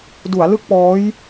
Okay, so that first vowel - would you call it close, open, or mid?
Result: close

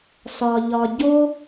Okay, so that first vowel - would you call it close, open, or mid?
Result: open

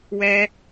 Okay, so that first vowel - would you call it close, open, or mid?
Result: mid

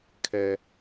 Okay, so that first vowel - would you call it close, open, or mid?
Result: mid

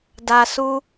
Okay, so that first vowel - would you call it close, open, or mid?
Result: open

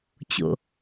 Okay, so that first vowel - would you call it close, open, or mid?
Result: mid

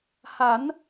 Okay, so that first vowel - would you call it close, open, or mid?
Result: open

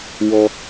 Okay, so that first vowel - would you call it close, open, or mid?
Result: mid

